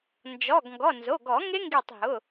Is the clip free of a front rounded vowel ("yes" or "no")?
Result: yes